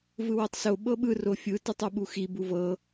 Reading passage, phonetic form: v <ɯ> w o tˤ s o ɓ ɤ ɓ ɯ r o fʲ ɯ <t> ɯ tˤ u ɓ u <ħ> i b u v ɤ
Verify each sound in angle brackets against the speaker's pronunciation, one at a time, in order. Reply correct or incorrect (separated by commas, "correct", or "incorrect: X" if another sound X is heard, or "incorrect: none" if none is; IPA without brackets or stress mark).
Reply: correct, correct, incorrect: x